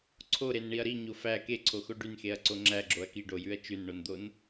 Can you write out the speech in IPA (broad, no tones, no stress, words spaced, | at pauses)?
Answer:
ǀʰoɾenɳiɐ̯ ɾiɲo fæ keǀʰoxo ɖynxeɐ̯ǀo ŋ͡ǁæɡ͡ǁoɐ̯ kiɖojʉɐ̯ t͡ʃʉnɳond̪on